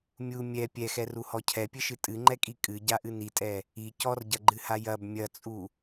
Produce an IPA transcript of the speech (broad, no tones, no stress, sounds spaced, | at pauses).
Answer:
mʲ u mʲ ɛ pʲ ɛ x ɛ r u h ɔ cʰ ɛ pʲ ɘ ʃ ɨ tʼ ɨ ŋ͡ǃ ɛ kʼ i kʼ ɨ ɟ a ʔ ɨ n i tʼ ɛ | i c ɔ r ɟ ɐ ɡ͡ǃ ɨ h a j ɐ b mʲ ɐ t͡sʼ u